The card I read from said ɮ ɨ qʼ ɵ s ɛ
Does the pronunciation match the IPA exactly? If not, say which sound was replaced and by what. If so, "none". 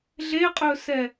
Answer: ɨ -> e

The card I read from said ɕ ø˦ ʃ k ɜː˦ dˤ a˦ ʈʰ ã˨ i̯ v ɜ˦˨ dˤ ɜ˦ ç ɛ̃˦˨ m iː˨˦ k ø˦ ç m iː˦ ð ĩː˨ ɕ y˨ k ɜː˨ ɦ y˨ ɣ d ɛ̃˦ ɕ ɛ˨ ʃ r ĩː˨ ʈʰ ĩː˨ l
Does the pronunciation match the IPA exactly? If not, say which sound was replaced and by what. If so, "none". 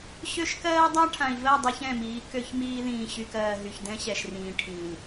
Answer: ɣ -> ç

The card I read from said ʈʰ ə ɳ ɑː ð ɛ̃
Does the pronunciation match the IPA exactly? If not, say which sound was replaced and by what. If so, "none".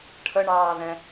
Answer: none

